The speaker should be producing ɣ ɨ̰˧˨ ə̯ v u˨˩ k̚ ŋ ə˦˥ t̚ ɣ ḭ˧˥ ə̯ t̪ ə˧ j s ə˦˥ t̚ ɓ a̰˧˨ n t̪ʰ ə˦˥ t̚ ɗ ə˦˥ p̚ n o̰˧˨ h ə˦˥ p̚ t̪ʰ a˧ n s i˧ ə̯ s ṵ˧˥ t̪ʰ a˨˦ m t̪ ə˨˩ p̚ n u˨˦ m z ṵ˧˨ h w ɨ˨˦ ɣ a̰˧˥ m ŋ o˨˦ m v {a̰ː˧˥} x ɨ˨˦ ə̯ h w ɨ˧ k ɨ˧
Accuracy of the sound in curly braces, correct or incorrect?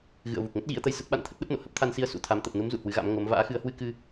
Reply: correct